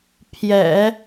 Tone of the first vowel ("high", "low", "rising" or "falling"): low